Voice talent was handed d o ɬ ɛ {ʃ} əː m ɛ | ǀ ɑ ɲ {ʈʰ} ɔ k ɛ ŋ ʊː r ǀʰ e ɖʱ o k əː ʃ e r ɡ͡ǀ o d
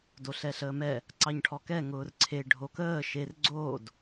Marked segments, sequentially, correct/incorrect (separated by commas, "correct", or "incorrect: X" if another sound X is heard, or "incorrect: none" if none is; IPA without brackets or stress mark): incorrect: ɬ, correct